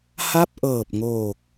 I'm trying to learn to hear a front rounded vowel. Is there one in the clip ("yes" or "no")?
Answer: no